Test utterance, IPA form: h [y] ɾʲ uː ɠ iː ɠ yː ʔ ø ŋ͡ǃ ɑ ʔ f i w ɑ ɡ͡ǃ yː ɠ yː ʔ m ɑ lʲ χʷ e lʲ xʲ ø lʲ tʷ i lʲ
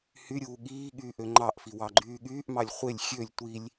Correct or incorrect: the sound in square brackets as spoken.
correct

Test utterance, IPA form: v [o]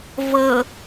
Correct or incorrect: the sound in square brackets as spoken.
incorrect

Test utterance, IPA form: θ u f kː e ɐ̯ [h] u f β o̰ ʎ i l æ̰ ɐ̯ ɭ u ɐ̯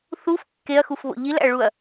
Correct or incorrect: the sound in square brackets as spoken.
incorrect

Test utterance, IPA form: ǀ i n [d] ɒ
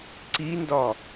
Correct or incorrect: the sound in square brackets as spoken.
correct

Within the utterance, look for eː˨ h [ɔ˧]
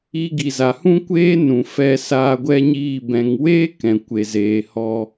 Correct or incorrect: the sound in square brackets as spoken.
correct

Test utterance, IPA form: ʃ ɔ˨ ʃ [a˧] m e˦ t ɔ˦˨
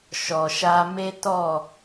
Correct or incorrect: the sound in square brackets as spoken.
correct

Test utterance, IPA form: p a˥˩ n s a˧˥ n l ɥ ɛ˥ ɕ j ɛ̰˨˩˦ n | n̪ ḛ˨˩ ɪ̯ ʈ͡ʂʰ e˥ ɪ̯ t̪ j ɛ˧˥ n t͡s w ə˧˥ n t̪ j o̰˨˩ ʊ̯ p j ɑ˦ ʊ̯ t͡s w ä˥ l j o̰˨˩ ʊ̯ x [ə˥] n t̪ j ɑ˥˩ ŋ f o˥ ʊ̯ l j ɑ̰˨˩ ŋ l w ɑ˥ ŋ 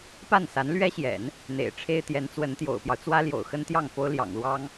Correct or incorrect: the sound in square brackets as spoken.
correct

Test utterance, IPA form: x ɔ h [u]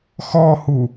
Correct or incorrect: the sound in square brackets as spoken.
correct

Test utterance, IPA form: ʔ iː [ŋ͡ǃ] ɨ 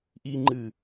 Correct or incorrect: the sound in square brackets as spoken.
correct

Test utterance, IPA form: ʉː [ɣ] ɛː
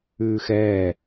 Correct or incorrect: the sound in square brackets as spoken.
incorrect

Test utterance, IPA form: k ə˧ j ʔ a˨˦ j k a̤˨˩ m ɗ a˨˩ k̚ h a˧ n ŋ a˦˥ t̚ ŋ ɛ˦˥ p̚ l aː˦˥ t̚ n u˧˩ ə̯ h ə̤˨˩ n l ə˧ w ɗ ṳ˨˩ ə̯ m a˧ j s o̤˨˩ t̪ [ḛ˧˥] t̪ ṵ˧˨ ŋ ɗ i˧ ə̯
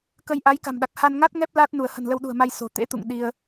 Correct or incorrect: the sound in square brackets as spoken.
correct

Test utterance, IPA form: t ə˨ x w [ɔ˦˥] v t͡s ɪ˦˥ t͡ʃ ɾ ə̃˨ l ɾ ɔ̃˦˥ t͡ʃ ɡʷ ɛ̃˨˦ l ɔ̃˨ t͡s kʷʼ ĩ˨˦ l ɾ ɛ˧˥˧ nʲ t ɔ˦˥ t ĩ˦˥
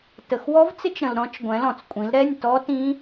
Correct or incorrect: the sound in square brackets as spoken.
correct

